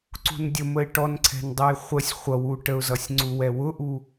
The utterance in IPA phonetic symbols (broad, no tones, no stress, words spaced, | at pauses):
ǀṳndʲəməɪ̯ ʈɔnǀʰɛ̤ndˤɛj χʷəsʲ χʷʌwu ʈəʊ̯zʌsʲŋ͡ǀu wɛwʊʔu